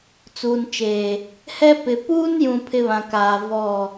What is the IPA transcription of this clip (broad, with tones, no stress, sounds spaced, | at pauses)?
t͡s uː˨ n t͡ʃ eː˨ | h ɛ˦ p ɪ˨ p uː˦ n j ũ˨ pʰ ɪ˦ β ã˨ k aː˨ v ɔ˦˨